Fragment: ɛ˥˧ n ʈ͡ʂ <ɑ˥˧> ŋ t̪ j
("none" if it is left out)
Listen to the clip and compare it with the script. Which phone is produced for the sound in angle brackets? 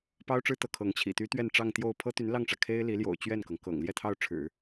ɑ˥˧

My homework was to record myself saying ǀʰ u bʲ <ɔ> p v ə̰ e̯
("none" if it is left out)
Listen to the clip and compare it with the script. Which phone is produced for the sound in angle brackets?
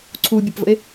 ʊ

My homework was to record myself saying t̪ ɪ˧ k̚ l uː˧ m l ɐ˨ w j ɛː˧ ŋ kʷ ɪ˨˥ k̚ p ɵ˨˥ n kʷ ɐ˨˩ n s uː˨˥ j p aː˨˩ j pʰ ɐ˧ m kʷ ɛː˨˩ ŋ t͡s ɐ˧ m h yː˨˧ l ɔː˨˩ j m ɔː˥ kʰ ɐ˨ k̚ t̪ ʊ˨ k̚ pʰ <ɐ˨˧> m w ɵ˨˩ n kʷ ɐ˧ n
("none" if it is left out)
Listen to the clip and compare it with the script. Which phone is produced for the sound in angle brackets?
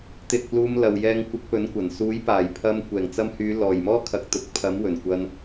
ɐ˨˥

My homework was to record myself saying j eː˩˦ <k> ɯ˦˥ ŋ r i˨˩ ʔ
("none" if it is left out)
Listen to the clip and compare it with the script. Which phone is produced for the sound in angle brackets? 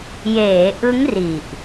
ʔ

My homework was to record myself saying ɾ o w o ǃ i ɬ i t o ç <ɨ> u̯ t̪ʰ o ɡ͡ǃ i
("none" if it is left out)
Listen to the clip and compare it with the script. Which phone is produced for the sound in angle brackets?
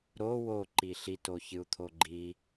ɨ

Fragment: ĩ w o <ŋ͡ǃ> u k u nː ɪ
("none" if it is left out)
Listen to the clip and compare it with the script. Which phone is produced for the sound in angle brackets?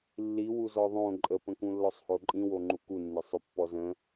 ŋ͡ǃ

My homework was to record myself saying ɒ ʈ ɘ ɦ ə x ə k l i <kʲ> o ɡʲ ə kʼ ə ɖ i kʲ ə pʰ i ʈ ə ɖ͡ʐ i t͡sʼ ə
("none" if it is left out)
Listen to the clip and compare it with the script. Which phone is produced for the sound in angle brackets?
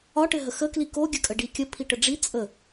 k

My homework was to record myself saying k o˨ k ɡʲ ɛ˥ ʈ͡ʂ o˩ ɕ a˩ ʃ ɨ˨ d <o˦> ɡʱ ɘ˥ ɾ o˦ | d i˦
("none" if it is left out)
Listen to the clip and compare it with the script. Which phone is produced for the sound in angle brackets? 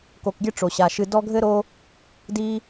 ɔ˦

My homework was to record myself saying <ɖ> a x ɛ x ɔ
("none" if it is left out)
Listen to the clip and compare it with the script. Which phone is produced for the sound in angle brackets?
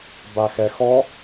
b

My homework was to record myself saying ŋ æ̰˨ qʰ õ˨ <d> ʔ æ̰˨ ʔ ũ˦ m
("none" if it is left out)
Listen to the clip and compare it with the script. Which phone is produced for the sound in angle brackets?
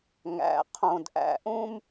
d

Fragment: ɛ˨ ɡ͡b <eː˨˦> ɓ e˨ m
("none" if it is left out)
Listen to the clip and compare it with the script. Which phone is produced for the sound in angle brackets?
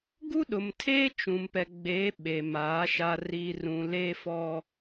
eː˨˦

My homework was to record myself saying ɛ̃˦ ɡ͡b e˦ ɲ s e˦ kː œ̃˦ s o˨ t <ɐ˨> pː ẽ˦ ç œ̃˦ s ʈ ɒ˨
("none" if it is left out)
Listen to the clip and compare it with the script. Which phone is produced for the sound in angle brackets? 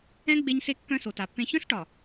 a˨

